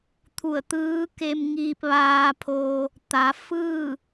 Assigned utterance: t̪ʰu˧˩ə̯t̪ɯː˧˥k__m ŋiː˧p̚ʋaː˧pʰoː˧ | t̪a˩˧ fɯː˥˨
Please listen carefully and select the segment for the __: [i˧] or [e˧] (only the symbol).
e˧